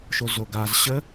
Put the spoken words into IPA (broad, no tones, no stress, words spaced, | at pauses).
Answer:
ʃozoɡaz ɕə